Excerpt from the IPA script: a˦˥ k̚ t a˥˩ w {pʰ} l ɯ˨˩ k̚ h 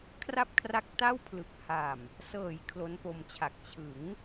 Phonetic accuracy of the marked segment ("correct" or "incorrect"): correct